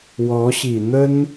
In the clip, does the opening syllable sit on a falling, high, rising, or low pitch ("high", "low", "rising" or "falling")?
rising